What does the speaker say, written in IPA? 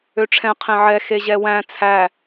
øʈ͡ʂʰɛ̃ qʰẽʕɛ xeʑɛwæ̃ t͡sʰæ

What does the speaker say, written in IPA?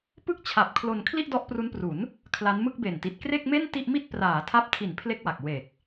pɯ˥˩k̚t͡ɕʰa˨˩p̚kʰlo˧n kʰli˥˩ʔdɔ˦˥ʔpru˦˥npru˩˦n | kʰla˦˥nmɯ˥˩k̚be˨˩nti˨˩t̚ kre˥˩k̚me˥˩n ti˥˩ʔmi˥˩t̚ praː˩˦tʰa˦˥p̚tʰi˩˦n pʰle˥˩k̚wa˨˩k̚ we˨˩k̚

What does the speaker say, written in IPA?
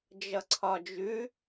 d͡ʒʌǀʰɒd͡ʒʉ

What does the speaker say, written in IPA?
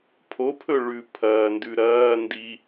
pʰopʰɵ ɭʉ pʰɐːndʉ ɾɐː ndi

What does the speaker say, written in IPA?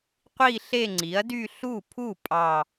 qʷi˥˧ ɬe˥˧ŋ͡ǀi˩˥ɐ̯dy˥˧ ɬu˥˩pʰu˥˩ pʼɑ˥˧

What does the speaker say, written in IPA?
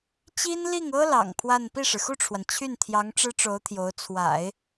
t͡ɕi˥n li˥˩ŋɤ˥ lɑ̰˨˩ŋpʰwa˥˧n pi˥˩ʂɻ̩˩xu˥˩ʈ͡ʂʰwa˩n t͡ɕʰy˥˩nt̪ʰjɑ˧˥ŋ ʈ͡ʂɻ̩˥ʈ͡ʂo˧˥ʊ̯t̪ʰjo˧˥ʊ̯ t͡sʰwa̰˨˩˦ɪ̯

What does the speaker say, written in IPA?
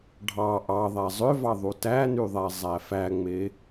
ɖʱɑ ʔɑðˤæ zˤøvɑ ðˤutænyðˤæ zˤæfæŋ͡me

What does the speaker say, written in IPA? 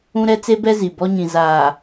ũ˦ɾɛ˦ t͡se˦bɛ˦ zi˨bɔ˦ɲĩ˨ zaː˨

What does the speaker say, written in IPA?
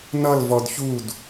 nʌl vɔdçud

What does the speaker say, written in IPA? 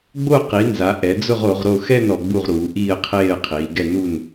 ɡ͡bo˦˨qi˩˧nza˩˧ ʔɛ˩˧d͡zʊ˦˨ʁ o˩˧ʁɾo˦˨ xɛ˦˨n ɔ˩˧ɡ͡bu˦˨ʁɾuː˩˧ ʔiː˦˨ə̯qʰeː˦˨ə̯qʰiː˩˧ɡɛ˦˨ nu˦˨n

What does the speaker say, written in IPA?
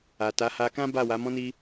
a˨ta˨˦ha˧kã˦ ba˦˨wa˨˦mɔ̃˦ni˦

